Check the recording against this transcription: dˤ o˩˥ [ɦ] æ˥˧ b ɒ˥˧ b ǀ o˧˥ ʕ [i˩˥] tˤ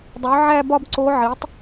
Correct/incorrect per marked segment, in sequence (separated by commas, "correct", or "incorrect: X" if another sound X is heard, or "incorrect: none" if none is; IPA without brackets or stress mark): incorrect: ʕ, correct